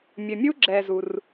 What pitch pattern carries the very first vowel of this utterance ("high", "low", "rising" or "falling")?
low